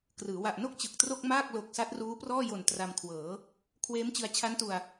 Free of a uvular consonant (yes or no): yes